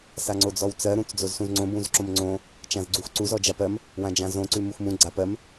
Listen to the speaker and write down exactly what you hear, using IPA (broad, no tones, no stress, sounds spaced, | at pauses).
s a ŋ͡ǀ o d͡z ɔ w t͡s ɜ ɾ ũ t͡s d͡z o z s ũ z ŋ͡ǀ õ b ũ z ǁ õ m ŋ͡ǀ õ | t͡ʃ ã z ɡ͡ǀ u x ǀ u z ɔ d͡ʒ a p ɜ m | w ã d͡ʒ ã z õ ǀ ʉ m u x m ũ ɡ͡ǀ a p ɜ m